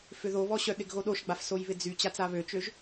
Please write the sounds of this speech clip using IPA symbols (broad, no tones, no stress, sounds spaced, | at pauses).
f ʏ ð o β ɔ ɕ œ ɗ ɪ ɡ ɣ o ɗ o ʃ ɡ͡b a f s o j β ɪ d͡z y t͡ɕ a t͡s a β ø t͡ʃ ø ʒ